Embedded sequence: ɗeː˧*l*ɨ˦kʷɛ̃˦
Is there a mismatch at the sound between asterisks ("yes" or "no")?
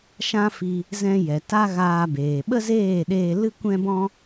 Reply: no